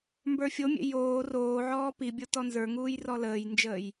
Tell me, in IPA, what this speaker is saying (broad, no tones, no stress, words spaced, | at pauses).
mbə˞fʲomʲḛ joː roːʕɔː pibʲo tɔnzə˞ŋuːj rɔləːjnd͡ʒəːj